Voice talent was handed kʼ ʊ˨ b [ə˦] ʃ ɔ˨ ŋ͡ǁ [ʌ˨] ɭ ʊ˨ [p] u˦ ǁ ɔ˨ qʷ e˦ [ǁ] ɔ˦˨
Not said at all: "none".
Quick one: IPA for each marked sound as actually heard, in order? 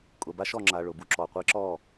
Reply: a˦, a˨, b, ǁ

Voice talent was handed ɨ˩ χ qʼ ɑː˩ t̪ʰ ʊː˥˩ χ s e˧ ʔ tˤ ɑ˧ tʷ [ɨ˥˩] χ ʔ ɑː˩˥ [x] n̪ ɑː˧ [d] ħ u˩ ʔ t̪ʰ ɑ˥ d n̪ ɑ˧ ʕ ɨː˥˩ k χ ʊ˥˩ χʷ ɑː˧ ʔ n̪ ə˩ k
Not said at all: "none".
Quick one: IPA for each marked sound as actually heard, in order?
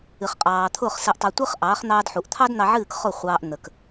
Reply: ɨ˥, χ, d

